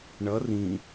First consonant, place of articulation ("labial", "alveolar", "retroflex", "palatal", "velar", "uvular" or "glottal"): retroflex